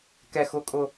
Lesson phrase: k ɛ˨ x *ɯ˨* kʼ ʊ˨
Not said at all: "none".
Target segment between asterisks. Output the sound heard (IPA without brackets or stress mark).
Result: ʊ˨